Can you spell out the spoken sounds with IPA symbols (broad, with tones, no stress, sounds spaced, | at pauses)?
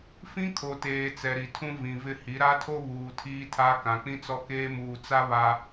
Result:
f ĩ˦ kʰ o˨ t eː˨ t͡s ɛ˨ ɾ i˨ tʰ ũ˦ v ĩ˨ v ɪ˦ h i˨˦ ɾ a˦ tʰ o˦ β uː˨ tʰ iː˦ tʰ a˦ k ã˨ k͡p ĩ˦ t͡s ɔ˦ k eː˦ m uː˨ t͡s a˦ β a˨